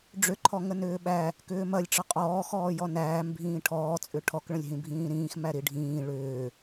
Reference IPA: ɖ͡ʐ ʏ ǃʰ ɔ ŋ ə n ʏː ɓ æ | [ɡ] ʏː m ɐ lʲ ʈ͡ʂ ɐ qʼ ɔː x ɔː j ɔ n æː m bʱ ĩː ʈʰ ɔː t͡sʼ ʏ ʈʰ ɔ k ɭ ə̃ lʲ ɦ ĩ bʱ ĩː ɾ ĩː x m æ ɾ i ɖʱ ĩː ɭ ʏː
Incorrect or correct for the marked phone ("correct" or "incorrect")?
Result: incorrect